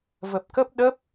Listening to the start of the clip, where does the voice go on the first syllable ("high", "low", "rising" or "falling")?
low